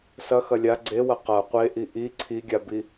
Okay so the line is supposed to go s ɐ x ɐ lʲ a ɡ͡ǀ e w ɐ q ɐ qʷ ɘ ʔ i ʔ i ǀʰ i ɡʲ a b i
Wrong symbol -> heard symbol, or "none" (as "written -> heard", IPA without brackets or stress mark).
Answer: ɘ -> e